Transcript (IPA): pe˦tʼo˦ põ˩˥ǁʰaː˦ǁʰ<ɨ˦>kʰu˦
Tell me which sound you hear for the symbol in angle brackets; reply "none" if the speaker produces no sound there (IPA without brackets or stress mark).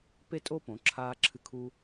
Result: ɨ˦